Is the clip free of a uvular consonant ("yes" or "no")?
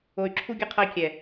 no